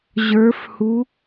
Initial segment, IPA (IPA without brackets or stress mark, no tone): ʑ